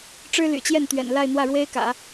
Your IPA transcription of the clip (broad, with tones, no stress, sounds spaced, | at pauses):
ʈ͡ʂ ɻ̩˥ l y̰˨˩ t͡ɕ j ɛ˥˩ n t̪ ɥ ɛ̰˨˩ n l a˥˧ ɪ̯ n̪ w ä˥˩ ɻ w e˥ ɪ̯ k ä̰˨˩˦